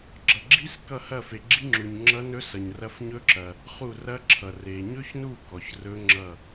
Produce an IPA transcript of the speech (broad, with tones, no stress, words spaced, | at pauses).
ɡ͡ǁʌ˨ɡ͡ǁi˦˥skʌ˦˨ hɐ˦˨ fe˨ɡ͡ǁi˦˥ŋ͡ǁu˨ɲ ŋ͡ǁʌ˦˥nɵ˦˥sʌ˨ɲrɐ˦˥f ɲɵ˦˥ǁɐ˨ | χu˦˨rɐ˦˥ǁʰʌ˨ re˨ ɲɵ˦˥çnu˦˨ kɔ˨ç rɵ˦˥ ŋ͡ǁʌ˦˨